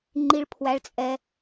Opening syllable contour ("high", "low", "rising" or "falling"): high